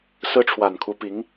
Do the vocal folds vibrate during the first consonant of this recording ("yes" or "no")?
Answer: no